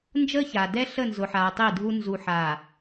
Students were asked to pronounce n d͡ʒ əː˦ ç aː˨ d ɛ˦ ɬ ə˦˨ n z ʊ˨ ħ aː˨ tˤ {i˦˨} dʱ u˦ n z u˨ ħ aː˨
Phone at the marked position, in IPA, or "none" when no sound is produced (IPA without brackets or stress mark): i˦˨